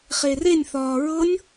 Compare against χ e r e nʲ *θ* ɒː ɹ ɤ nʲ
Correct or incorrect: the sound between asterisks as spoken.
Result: correct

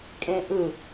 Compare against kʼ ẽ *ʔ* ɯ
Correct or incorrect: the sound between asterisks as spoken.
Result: correct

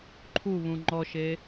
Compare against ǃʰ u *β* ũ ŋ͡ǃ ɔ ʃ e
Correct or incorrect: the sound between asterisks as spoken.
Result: correct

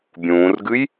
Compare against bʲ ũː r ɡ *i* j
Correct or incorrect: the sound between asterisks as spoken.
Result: incorrect: ɨ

